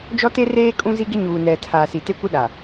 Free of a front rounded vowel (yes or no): yes